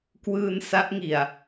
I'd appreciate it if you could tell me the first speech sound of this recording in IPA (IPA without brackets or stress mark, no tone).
k